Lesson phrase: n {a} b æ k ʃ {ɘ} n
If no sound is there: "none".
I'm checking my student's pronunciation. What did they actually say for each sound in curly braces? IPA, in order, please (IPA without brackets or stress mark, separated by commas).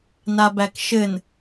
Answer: a, ɘ